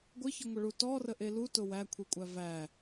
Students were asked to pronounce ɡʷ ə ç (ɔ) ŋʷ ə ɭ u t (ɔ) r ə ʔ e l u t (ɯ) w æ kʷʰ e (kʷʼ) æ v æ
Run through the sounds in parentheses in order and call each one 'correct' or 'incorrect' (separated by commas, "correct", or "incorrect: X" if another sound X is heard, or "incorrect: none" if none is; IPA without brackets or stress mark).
incorrect: ə, correct, incorrect: ʊ, correct